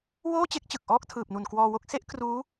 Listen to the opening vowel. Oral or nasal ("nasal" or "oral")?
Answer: oral